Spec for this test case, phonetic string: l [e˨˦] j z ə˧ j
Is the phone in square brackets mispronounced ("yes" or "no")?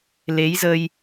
no